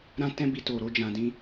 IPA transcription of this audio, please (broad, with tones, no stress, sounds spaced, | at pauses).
ɾ ã˦ t ɛ̃˦ b i˧ t o˨ ɾ o˧ d͡ʒ ã˨ d ĩ˧